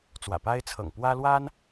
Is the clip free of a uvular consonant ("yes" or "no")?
yes